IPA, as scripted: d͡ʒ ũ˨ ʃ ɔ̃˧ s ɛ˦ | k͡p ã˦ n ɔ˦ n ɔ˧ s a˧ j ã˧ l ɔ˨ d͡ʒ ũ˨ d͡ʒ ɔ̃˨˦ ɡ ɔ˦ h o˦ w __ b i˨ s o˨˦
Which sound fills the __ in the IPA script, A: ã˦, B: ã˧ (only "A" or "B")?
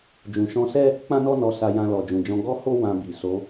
B